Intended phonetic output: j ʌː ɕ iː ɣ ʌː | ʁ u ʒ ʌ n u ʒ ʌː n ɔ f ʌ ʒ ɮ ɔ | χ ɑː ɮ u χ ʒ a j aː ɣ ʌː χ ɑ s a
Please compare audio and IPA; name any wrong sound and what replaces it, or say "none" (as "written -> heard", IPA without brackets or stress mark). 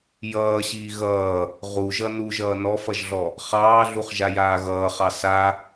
none